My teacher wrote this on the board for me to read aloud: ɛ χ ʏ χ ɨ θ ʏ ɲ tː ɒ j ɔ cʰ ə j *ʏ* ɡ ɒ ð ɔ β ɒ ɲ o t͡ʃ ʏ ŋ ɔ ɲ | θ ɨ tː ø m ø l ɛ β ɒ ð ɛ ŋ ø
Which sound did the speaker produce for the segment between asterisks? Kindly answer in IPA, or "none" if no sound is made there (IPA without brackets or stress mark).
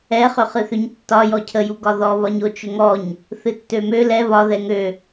u